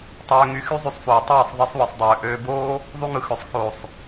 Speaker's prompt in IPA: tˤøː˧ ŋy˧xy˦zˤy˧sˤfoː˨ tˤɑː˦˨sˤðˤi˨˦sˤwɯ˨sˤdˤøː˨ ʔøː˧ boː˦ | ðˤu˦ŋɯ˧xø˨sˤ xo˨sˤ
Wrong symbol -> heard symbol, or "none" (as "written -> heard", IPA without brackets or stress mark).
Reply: none